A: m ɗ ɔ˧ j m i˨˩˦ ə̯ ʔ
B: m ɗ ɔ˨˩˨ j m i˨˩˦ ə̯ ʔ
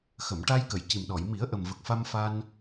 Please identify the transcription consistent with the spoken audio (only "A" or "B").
B